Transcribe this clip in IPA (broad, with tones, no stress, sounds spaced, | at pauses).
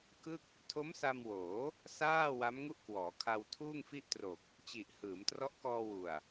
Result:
k ɯ˥˩ k̚ | tʰ o˦˥ m s a˧ m w oː˩˦ | s aː˥˩ w a˦˥ m ŋ u˥˩ ʔ k w ɔː˩˦ kʰ a˧ w tʰ uː˥˩ ŋ f i˥˩ ʔ t r o˨˩ k̚ | t͡ɕ i˨˩ ʔ h ɯː˩˦ m t r ɔ˦˥ ʔ k ɔː˧ w u˨˩ a̯